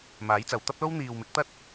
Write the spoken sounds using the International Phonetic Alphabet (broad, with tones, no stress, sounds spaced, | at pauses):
m aː˨˥ j t͡s ɐ˨ w t̪ ɐ˥ p̚ l o˥ w n̪ iː˨ w m ɪ˨˥ k̚ t̪ ɐ˥ t̚